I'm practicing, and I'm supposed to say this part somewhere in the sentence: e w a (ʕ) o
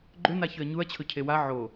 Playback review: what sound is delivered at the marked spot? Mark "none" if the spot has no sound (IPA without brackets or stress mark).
ʕ